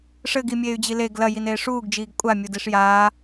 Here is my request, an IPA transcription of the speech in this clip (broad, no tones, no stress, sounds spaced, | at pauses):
ʂ ɘ ɡ i mʲ eː y̯ d͡ʑ i l e ɡ l ɐ j i n eː ʂ uː ɡ d͡ʒ iː ɡ kʷʼ a mʲ u d i ʂ j aː